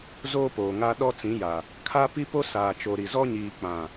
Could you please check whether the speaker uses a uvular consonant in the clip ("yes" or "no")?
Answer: no